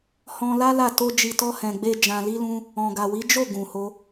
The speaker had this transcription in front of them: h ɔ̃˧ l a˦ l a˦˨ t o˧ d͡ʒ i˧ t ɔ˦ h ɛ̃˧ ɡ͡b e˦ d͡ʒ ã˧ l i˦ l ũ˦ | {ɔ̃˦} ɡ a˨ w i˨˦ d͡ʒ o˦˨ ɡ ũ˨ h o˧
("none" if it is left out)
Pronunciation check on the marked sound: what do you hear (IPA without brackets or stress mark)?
ɔ̃˨